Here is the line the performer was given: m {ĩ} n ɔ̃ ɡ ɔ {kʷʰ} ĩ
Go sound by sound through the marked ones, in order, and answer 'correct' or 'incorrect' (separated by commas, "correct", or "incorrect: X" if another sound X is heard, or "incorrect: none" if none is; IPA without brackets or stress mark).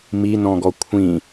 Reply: incorrect: i, correct